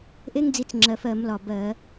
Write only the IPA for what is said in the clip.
ʔ e˥ ŋ d͡z i˨˦ t͡s ŋ͡ǁ ɜ˨˩ f ɜ˧˩˧ m l ɒ˨˩ b ɜ˧˩˧

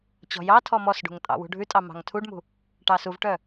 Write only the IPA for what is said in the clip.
t͡ɕ ɔ̤ j ɑ tʰ ɔ m ɔ s ɖ ṳ ŋ tʼ ɑ̰ w ṳ ɖʱ ʉ tʼ ɑ m ɑ̤ ŋ tʰ u ɖ m ṳ | ʈ ɑ s u v ʈ œ

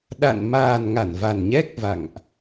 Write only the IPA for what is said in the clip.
ɗ a̰˧˨ n m aː˨˩ n ŋ a˧˩ n v a˨˩ n ɲ ɛ˦˥ k̚ v a̰˧˨ ŋ ʔ

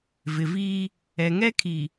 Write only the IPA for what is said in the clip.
v ɪ˨ v iː˦ | ɛ˨ ŋ ɛ˦ kʰ i˨

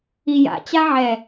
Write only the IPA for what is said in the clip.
i j a̰ t͡ɕ a ʕ ɛ

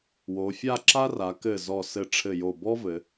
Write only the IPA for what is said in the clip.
w o˩˧ fʲ a˥˧ ǁ a˥ r a˩˧ k ɘ˧˩ z ɔ˧˩ s ɘ˧˩ ʈ͡ʂʰ ɘ˧˩ j o˧˩ b ɔ˥ v ɘ˩˧

